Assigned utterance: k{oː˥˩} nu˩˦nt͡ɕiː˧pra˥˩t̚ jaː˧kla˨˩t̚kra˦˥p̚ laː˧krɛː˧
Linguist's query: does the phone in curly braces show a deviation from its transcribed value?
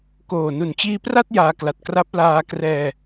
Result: yes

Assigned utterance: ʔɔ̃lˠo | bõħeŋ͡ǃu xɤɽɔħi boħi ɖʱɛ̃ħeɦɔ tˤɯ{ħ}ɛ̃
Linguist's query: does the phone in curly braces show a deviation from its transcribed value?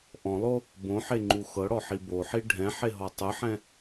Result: no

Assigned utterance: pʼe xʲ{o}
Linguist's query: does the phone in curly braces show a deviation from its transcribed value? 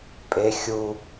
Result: yes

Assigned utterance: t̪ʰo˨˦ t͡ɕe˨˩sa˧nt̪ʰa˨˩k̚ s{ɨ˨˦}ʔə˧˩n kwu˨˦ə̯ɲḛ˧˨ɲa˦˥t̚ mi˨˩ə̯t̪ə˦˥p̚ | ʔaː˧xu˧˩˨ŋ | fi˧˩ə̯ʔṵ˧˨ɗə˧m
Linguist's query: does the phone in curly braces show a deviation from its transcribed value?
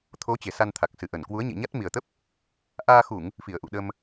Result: yes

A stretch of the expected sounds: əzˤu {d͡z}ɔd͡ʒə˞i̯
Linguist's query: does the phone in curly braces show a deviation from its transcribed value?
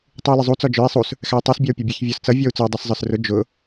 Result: yes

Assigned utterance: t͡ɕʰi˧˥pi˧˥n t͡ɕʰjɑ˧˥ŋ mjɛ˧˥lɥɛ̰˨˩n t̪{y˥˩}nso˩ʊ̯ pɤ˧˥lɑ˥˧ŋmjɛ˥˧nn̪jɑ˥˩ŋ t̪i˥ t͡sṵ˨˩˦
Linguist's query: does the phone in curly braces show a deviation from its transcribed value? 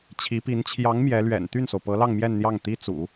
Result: no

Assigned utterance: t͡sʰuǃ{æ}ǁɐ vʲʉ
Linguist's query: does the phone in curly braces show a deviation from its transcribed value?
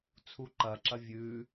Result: yes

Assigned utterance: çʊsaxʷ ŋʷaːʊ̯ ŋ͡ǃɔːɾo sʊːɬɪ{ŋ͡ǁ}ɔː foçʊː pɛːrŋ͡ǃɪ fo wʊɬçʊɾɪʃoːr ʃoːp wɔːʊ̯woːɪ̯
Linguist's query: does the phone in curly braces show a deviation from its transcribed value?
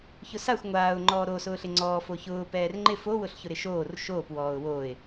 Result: yes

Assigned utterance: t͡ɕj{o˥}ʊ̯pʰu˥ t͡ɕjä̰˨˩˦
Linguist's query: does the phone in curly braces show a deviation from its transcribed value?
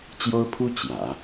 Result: no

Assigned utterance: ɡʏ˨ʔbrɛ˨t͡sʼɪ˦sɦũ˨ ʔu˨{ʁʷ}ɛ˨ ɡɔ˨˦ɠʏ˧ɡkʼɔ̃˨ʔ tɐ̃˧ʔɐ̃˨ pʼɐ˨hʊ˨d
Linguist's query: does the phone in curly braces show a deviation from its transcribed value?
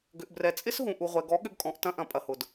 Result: no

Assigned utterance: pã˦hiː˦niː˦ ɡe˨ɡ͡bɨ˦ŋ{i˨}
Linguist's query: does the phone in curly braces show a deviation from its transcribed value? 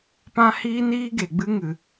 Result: yes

